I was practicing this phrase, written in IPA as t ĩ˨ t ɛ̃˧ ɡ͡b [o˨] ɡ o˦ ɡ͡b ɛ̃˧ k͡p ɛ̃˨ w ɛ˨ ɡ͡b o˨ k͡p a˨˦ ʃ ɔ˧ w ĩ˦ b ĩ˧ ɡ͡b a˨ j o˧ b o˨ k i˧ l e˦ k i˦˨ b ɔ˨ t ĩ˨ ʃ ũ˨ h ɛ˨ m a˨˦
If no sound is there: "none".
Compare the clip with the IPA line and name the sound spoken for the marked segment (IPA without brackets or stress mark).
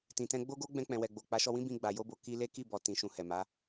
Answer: o˦